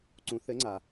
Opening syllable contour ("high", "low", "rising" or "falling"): rising